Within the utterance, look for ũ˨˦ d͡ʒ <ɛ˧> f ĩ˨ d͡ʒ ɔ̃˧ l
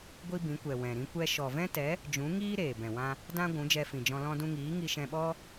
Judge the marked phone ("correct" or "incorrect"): correct